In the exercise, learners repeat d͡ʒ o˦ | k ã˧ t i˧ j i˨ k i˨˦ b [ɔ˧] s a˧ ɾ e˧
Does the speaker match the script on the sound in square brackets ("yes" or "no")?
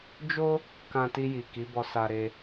yes